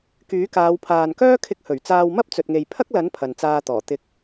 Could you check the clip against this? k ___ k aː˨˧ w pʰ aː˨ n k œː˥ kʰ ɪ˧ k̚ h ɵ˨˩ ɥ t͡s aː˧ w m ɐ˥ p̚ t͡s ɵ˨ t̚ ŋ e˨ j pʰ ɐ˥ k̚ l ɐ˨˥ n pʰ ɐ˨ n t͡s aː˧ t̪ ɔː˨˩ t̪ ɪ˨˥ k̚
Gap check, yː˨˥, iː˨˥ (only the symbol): yː˨˥